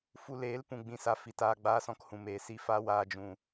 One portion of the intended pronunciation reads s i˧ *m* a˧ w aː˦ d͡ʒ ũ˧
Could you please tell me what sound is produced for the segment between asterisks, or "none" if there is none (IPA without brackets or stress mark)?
f